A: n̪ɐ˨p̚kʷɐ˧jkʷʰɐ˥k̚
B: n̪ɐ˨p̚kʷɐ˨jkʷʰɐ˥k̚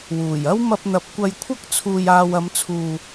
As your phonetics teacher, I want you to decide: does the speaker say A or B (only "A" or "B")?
A